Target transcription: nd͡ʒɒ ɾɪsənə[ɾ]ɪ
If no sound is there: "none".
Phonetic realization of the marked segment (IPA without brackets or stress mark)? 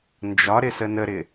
ɾ